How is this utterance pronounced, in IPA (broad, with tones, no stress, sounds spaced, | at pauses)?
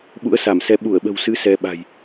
ɓ ṵ˧˥ ə̯ s a˧˩ m s ɛ˨˦ ɓ u˧˩ ə̯ ɓ ə̤˨˩ w s ɨ˨˦ s ɛ˧ ɓ a̤˨˩ j